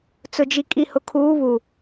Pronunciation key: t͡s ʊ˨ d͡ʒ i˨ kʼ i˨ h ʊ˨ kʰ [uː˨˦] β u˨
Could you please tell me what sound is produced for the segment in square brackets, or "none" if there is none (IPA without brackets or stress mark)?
uː˨˦